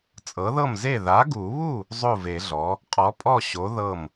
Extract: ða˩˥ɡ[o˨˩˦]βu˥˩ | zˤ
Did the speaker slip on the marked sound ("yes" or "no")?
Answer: yes